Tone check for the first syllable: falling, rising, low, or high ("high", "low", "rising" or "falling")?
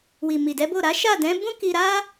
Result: low